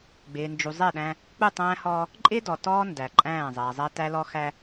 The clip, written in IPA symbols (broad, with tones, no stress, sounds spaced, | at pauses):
ɡ͡b ɪː˨ n d͡ʒ u˨ zˤ ɛ˦˨ ɗ æ̃˦ | k͡p u˦˨ tˤ æ̃ː˦ h ɔː˦ | ǃʼ ɪː˦ d ɔ˨ t ɔː˦ n d æ˨ ǃʼ æ̃ː˦˨ zˤ æ˨ zˤ æ˦ t æ˦ l ɔ˦ x æ˦